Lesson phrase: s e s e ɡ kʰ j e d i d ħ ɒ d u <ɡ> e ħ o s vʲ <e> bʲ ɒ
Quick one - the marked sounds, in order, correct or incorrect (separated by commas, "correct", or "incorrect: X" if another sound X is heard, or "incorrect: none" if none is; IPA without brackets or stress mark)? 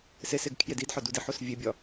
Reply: incorrect: d, correct